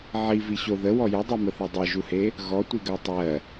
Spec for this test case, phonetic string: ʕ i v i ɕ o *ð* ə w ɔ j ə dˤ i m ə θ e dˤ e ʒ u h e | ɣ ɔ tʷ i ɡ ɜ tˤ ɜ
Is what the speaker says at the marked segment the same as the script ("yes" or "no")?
yes